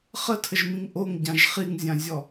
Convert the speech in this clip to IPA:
χətʰəʒmĩŋ ʔoŋɟãʒ χiŋzʲãzʲɔ

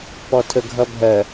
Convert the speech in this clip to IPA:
pɔtʰəɡʱʌbʱɜ

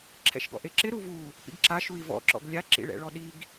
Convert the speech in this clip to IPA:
ǁʰɛ̰ʃɡɔ̰ʔeǁɪ ɾuvu | pḭɡǁaʃui̯ vɔ̰ǁɔ̰ɡ lʲaǁḭɭɛ̰ɭɔ ɗiɡ

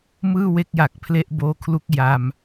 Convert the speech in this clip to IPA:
mɯː˥˩we˦˥k̚ja˨˩k̚pʰle˦˥ʔ boː˦˥kʰlu˦˥k̚ ja˧m

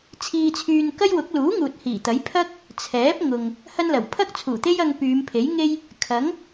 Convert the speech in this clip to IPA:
t͡sʰiː˧t͡sʰyː˧n kɐ˥jwʊ˨˥k̚ luː˨˥ŋuː˨t̚ hiː˨˩t̪ɐ˨˥j pʰɐ˥k̚ | t͡sʰɛː˨˥p̚ŋʊ˨ŋ | hɐ˥nlɐ˨˩w pʰɐ˥k̚t͡sʰuː˨˩t̪e˥jɐ˧ŋ pyː˨˧mpʰe˨˥jŋe˥j | kʰɐ˨˥ŋ

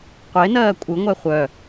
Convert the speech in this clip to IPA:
qʷenɜː kʷʼɯŋʷɛ χʷœ

